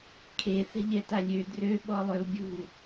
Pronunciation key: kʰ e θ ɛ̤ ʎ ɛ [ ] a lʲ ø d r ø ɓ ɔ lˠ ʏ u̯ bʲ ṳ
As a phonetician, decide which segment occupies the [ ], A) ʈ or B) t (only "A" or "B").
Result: B